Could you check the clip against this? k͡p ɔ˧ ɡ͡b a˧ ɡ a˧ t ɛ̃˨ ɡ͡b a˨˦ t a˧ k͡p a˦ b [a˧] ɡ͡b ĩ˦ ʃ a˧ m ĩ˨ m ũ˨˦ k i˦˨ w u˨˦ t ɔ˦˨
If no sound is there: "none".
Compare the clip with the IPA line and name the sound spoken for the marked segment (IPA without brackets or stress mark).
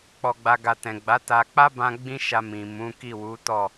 ã˧